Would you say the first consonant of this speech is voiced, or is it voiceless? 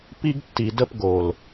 voiceless